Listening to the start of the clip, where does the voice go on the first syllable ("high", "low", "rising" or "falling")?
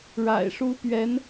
low